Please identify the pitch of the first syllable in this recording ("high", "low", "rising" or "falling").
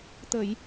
low